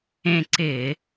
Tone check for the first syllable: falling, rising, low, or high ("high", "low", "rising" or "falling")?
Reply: falling